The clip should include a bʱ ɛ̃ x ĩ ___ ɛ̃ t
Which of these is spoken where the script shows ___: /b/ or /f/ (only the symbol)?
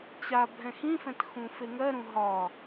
f